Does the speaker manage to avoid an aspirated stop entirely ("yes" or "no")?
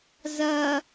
yes